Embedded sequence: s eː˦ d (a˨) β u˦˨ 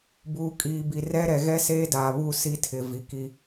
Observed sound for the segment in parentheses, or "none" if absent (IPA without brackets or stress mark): a˨